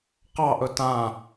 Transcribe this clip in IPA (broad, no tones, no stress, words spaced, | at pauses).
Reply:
qɑʔɵ tã